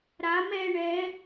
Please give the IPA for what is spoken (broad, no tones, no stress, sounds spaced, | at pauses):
ɾ a m ɛ ɳ ɛ